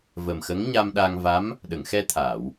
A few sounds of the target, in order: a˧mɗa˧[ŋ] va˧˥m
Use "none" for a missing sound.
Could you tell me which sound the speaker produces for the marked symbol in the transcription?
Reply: ŋ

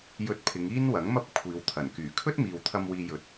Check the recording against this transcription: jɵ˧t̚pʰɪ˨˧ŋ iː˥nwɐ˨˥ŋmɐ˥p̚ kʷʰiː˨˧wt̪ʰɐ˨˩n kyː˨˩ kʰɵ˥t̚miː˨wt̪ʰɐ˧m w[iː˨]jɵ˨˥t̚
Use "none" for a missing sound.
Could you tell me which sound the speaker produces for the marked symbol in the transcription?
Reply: iː˧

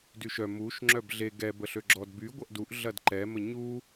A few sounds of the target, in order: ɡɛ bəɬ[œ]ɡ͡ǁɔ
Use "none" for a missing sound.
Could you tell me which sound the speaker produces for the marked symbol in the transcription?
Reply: ø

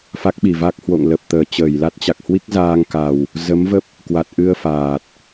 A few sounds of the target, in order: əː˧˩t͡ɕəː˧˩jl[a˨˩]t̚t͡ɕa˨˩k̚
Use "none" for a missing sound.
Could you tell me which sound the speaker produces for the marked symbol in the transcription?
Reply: a˦˥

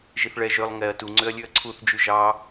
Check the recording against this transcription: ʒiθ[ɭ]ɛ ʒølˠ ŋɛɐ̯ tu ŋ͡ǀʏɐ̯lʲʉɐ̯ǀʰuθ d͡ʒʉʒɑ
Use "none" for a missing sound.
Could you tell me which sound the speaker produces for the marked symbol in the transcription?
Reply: ɭ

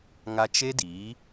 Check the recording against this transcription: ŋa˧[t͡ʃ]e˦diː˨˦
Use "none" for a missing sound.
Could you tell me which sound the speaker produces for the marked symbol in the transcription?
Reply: t͡ʃ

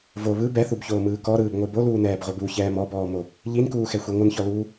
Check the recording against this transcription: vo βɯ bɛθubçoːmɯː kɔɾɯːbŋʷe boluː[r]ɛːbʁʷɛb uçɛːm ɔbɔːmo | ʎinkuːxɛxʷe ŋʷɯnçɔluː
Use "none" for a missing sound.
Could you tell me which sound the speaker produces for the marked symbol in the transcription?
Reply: n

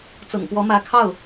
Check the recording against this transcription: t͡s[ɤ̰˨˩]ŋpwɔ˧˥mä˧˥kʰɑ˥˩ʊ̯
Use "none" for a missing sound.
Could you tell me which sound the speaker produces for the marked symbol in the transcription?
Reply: ɤ̰˨˩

